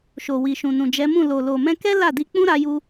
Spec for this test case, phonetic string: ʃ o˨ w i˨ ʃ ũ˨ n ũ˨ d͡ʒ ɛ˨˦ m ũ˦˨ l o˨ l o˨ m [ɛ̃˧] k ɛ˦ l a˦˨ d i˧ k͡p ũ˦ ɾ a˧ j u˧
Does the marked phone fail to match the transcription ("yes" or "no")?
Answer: no